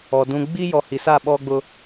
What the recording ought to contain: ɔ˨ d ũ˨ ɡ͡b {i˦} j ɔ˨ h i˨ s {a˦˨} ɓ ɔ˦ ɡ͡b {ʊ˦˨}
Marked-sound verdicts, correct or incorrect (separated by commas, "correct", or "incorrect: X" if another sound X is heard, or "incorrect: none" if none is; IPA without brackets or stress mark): correct, correct, incorrect: ʊ˦